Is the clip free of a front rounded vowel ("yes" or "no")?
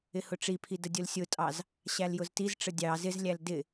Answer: yes